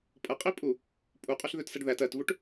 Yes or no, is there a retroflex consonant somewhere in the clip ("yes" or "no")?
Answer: yes